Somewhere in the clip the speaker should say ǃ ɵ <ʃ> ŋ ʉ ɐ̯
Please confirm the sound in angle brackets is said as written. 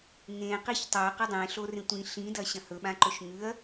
yes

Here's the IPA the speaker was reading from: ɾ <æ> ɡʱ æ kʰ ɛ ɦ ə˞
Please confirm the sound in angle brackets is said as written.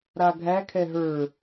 no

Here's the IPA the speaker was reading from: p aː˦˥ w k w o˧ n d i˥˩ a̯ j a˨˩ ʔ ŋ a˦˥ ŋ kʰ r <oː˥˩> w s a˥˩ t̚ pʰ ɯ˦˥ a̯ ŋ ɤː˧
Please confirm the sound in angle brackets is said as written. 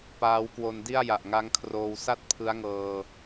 no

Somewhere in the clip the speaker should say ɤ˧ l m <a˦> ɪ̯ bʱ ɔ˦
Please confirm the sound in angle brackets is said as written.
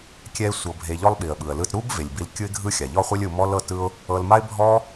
yes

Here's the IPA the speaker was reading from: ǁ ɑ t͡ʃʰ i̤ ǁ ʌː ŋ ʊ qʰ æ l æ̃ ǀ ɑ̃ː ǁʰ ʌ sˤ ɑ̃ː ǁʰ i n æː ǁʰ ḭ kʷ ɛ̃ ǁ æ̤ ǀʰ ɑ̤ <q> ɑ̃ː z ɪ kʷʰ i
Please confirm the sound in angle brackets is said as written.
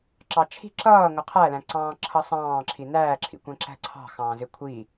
no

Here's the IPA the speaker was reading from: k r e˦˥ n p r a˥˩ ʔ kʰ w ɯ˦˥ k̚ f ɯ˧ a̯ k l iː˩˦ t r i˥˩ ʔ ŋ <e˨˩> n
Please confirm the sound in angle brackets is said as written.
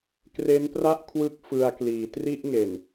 yes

